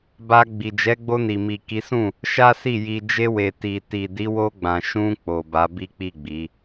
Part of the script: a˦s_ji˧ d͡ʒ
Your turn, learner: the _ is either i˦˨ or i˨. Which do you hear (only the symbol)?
i˦˨